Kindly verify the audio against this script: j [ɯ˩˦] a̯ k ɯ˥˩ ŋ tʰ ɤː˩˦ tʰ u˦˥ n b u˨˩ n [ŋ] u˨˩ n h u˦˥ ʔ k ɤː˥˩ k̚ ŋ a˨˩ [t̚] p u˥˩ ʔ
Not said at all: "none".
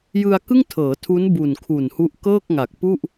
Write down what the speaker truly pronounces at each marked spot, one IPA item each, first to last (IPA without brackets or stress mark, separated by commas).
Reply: ɯ˧, kʰ, k̚